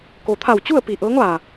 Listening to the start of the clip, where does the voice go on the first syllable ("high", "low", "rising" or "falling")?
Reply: low